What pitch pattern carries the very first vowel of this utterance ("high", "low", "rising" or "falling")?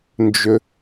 low